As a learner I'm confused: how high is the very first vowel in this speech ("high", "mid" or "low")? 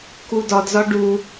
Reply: high